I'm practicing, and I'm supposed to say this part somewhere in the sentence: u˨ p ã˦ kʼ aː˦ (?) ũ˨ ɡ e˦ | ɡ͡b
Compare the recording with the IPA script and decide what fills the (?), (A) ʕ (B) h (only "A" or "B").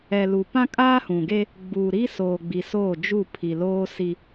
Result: B